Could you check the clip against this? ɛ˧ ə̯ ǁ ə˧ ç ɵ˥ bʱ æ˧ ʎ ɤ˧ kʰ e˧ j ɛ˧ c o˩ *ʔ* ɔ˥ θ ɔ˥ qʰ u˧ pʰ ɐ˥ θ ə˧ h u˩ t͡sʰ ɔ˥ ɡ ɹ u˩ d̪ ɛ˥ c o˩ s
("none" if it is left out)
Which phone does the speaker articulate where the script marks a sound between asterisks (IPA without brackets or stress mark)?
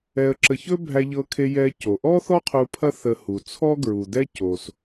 ʔ